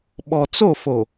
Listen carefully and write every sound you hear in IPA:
ɓ ɔ˨ t͡s o˦˨ f o˨

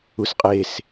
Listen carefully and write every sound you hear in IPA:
u s qʼ e s

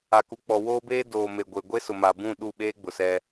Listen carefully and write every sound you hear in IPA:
a˨ k u˨ k͡p ɔ˨ w oː˦ b eː˦ d oː˨ m e˨ ɡʷ e˨ ɡʷ e˦ s ʊ˨ m a˨ b ũ˦˨ ɗ u˦˨ ɓ eː˦ ɡ͡b ʊ˨ s ɛ˦

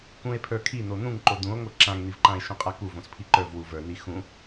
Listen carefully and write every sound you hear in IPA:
k ũ e̯ pʰ ə˞ kʰ i n̪ o n̪ ũ ŋ ǃ o d̪ ũ o̯ ŋ o ǁ ã ŋ n̪ i v ǃ ã e̯ ʃ õ qʼ a k u v õ s pʰ i ǃ ə˞ v w u v ə˞ n̪ i x ũ

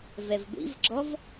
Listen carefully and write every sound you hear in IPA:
v ɛ v ɡʷ ḭ v ɡ͡ǁ ɔ v

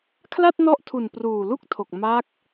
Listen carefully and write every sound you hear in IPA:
kʰ l a˥˩ t̚ n ɔ˦˥ ʔ tʰ u˨˩ n p r uː˨˩ l u˥˩ k̚ tʰ o˨˩ k̚ m a˦˥ k̚

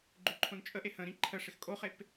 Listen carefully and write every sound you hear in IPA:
ɡ͡ǃ ʉ ǃʰ õ n t͡ʃʼ ə ʔ e h ə̃ ɾ ĩ ǃʰ ə ʂ ɪ x kʼ o χ e p

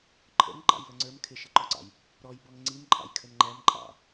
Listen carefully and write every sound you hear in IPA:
ǃʰ ə̰ ŋ ǃ ɑ̰ j l ə ŋ͡ǀ ə˞ m kʰ ɪ ʃ ɪ ǃ ɔ ǀ ɑ̰ j | ɾ ɔ j b ɔ ŋ ŋ͡ǀ i m ǃʼ ɑ̰ j kʰ ə n ŋ͡ǃ æ m ǃʼ ɑ̰

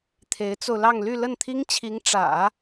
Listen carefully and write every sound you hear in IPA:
t̪ʰ e˧˥ ɪ̯ t͡s o˧ ʊ̯ l ɑ˥˧ ŋ l y˥˧ l ə˥˩ n t̪ʰ i˥ ŋ t͡ɕʰ i˧˥ ŋ ʈ͡ʂ ä̰˨˩˦

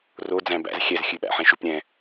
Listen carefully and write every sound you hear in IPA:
r o d͡z æ̃ b æ̰ z xʲ ɛ z xʲ ʉ ɓ æ̰ ħ ẽ ʃ ʉ p ɾʲ ɛ̃

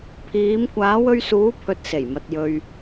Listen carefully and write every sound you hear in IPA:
pʰ iː˨˧ m kʷ aː˨˧ w ɵ˧ ɥ s uː˨˧ pʰ ɵ˨ t̚ s e˨˩ j m ɐ˨ t̚ j ɵ˨ ɥ

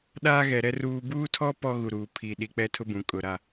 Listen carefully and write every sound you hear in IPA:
ɗ aː˦ ɣ ɛ˨ ɾ ɛ˦ r uː˨ b uː˦ tʰ ɔ˦ p ɔ˦ ɣ u˨ ɾ uː˨ pʰ i˨ ɗ i˨ k͡p ɛ˦ tʰ ʊ˦ b ũ˨ kʼ ʊ˨ ɾ a˦

